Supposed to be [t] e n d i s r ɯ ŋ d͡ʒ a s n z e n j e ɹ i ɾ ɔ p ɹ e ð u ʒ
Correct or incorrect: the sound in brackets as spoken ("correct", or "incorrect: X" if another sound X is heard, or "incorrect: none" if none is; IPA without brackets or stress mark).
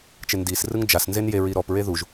incorrect: t͡ʃ